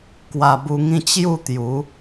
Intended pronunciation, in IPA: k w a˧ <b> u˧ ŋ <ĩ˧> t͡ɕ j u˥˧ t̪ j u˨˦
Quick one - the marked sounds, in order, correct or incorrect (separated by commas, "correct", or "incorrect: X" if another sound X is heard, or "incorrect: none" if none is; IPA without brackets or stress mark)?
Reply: correct, incorrect: ĩ˥˧